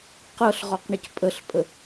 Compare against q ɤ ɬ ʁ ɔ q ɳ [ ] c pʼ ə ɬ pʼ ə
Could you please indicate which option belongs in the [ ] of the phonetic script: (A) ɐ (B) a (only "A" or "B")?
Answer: A